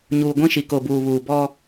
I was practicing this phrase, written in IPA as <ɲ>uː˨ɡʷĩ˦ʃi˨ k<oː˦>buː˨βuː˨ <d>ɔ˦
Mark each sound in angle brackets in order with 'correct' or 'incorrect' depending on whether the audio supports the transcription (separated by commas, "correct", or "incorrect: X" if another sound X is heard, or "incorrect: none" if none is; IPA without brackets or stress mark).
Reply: correct, incorrect: oː˨, incorrect: b